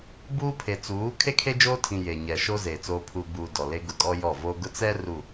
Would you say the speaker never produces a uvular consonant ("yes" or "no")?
yes